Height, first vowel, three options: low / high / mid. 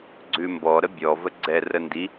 high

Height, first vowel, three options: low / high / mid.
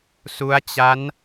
high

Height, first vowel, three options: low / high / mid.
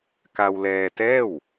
low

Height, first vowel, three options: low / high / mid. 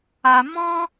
low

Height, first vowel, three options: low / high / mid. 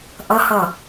mid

